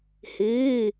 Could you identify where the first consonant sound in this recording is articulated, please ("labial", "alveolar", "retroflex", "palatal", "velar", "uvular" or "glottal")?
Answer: glottal